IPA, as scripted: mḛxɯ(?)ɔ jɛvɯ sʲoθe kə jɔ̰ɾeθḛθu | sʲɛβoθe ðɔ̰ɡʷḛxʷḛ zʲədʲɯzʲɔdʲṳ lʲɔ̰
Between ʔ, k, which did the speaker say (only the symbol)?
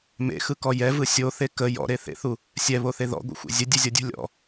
k